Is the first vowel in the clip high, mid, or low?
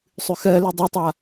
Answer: high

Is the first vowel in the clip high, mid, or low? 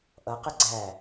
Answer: mid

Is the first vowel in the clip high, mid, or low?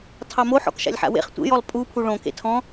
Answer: low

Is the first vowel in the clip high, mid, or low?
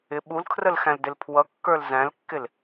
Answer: high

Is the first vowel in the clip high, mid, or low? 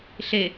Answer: mid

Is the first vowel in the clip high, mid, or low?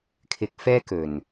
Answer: high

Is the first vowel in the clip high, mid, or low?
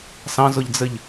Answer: low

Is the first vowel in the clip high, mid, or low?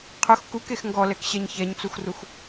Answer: high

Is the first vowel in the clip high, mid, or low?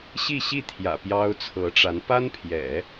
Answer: high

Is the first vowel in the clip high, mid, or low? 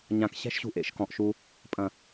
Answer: low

